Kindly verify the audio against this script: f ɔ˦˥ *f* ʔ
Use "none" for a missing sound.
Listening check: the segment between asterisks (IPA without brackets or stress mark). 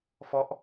none